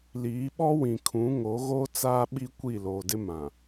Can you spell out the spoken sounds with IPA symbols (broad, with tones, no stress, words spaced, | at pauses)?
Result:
liː˨˦ɓɔ˦wĩ˨ kʰũ˨˦ŋo˨˦ɣoː˦ t͡saː˦ɓi˦ kʷi˦˨loː˨dɪ˦ mã˨